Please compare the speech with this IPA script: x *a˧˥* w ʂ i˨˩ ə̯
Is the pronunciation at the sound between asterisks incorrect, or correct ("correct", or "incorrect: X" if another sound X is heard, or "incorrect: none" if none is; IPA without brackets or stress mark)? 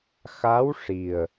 correct